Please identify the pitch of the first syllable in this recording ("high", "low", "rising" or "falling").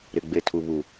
low